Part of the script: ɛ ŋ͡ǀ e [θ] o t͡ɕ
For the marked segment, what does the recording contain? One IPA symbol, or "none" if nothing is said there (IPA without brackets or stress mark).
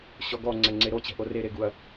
ɾ